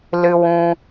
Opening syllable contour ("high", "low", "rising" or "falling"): high